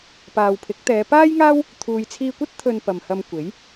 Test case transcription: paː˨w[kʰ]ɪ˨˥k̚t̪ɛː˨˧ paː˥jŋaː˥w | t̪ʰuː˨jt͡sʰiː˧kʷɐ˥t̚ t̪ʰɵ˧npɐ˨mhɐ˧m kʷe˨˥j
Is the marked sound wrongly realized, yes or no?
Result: yes